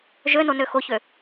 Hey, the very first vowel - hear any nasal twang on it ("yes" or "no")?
no